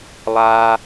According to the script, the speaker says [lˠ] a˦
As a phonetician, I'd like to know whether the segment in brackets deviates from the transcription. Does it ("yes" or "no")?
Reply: no